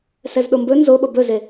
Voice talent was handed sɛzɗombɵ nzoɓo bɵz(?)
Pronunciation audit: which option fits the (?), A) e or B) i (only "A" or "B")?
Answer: A